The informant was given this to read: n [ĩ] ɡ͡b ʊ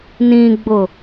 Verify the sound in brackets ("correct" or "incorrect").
correct